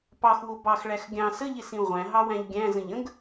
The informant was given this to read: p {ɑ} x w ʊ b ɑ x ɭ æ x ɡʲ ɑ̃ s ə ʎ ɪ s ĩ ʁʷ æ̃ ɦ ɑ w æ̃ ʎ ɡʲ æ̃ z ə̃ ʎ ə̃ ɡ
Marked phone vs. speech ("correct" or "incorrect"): correct